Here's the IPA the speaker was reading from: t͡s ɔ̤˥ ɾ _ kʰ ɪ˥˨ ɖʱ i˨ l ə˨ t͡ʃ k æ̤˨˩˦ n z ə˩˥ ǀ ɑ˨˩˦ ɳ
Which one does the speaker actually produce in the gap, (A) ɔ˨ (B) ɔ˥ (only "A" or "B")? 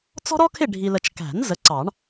B